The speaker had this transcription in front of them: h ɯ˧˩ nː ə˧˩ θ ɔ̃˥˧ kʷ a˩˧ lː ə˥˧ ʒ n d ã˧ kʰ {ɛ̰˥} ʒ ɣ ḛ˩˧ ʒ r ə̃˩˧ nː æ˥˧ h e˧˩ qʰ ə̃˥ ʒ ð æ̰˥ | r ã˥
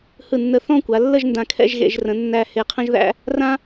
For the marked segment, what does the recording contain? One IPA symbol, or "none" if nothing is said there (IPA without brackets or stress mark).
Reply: ɛ̰˥˧